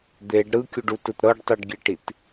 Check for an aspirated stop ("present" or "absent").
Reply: absent